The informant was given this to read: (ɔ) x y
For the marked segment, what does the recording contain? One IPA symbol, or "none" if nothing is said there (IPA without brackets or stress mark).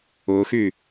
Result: ʊ